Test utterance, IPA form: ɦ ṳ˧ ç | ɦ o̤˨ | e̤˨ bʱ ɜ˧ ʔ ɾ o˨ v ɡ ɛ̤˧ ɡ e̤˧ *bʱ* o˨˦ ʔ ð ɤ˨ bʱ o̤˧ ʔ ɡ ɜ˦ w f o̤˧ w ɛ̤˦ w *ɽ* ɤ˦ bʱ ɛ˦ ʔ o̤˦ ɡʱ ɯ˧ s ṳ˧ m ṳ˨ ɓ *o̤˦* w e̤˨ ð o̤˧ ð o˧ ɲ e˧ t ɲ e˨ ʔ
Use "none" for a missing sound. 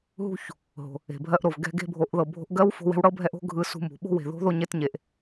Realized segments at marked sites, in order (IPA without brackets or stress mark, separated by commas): bʱ, ɽ, o̤˦